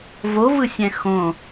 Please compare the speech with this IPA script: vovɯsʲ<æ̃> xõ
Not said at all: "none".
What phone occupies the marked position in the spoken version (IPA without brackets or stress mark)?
æ̃